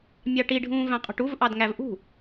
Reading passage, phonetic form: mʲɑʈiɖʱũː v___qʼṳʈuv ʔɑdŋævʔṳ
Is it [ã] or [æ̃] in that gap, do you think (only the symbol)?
æ̃